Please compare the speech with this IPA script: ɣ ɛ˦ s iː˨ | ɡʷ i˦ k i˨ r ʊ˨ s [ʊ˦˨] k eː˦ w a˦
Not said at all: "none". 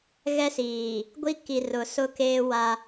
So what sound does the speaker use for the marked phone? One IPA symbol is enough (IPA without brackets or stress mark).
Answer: ʊ˦